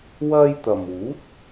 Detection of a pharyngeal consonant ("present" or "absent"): absent